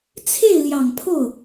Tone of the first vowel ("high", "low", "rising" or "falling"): falling